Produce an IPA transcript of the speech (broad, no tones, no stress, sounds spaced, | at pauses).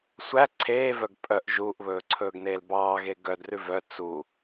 sʷ æ ǀʰ eː v œ ɡ pʼ œ ʔ ʒ uː ʔ β ɵː ǀʰ ɵː ɡ n eː l b ɑː ɣ e ɡ œ d r ʉ v œ t͡s u